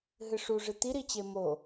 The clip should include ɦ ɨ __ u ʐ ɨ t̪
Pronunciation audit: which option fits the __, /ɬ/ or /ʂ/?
ʂ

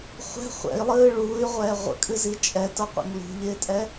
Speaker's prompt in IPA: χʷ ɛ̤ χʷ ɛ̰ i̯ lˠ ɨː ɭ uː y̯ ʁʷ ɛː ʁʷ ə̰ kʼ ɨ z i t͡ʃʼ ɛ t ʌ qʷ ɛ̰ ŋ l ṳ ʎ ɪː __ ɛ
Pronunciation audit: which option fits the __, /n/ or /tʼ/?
tʼ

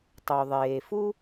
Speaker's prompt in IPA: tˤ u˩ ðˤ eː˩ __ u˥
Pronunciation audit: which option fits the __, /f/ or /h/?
f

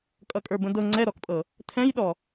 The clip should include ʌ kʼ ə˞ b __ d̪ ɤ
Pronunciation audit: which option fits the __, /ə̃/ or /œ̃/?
ə̃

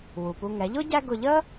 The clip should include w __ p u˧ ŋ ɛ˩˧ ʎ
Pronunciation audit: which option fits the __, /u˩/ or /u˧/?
u˩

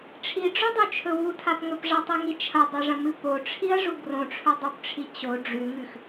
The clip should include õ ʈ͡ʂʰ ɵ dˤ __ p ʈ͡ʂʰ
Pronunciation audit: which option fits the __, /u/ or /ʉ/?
u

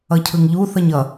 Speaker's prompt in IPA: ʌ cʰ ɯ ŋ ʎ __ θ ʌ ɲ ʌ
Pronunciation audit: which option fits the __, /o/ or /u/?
u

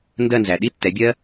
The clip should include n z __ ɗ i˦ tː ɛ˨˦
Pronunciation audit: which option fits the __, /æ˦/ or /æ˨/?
æ˨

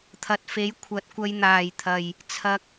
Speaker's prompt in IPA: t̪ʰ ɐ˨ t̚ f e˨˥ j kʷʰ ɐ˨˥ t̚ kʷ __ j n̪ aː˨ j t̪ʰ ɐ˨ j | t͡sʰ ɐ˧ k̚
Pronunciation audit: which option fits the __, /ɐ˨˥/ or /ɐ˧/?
ɐ˧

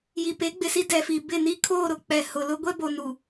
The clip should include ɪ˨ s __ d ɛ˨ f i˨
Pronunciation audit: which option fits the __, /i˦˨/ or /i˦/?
i˦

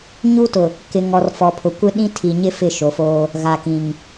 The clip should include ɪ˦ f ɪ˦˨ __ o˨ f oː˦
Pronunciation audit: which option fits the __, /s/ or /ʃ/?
ʃ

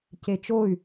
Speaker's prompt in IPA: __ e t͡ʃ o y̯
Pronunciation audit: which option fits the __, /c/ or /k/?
c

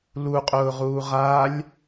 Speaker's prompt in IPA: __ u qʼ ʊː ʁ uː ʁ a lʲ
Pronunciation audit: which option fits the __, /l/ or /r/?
l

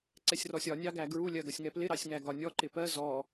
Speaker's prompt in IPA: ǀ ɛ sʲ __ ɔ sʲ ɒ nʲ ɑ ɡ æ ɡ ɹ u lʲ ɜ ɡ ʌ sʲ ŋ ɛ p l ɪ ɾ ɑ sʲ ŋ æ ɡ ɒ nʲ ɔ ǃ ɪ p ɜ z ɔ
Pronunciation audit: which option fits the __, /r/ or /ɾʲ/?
r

